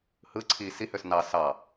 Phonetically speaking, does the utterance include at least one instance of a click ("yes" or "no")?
yes